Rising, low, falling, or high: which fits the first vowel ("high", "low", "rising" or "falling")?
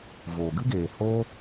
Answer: low